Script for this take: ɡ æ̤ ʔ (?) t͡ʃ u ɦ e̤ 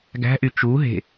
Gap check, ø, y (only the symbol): y